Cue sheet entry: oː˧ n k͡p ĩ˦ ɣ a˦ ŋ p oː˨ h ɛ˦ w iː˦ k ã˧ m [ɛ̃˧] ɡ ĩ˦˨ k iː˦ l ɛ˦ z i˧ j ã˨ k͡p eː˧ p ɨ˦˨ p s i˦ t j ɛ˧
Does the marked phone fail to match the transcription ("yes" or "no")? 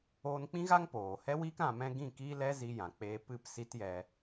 yes